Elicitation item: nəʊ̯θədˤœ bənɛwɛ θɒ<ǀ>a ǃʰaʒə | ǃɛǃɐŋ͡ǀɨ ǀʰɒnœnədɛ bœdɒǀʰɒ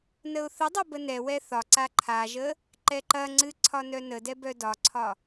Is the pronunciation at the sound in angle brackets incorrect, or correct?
correct